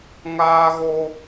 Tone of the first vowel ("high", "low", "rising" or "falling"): high